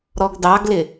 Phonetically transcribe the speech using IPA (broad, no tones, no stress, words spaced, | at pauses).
ɾɔɡdɑɡlɪ